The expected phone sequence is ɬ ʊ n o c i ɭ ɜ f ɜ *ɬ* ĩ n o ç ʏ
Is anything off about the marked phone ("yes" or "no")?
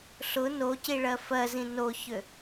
yes